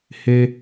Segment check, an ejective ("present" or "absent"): absent